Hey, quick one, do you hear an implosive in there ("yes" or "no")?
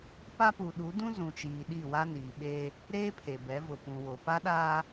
yes